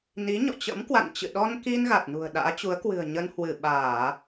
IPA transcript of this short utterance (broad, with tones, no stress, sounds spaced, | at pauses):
n i˨˦ ɲ ɔ̰˧˨ t͡ɕ ə̰˧˥ m k w a̰˧˨ n t͡ɕ ɨ̰˧˨ ɗ ɔ˧ n k i˧ n ɣ a˨˩ t̚ n ṳ˨˩ ə̯ ɗ a̰ː˧˥ t͡ɕ u˨˦ ə̯ k w ɨ̤˨˩ ə̯ ɲ ə˧ n h w ɨ˧˩ ɓ aː˧˩˨